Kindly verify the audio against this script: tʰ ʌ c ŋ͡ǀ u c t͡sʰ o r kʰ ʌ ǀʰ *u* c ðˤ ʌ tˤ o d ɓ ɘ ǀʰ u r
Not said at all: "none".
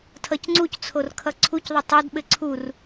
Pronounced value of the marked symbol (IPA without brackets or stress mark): u